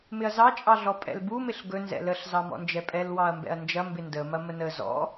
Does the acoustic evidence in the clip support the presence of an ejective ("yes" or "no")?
yes